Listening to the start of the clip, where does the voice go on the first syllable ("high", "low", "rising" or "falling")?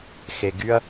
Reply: low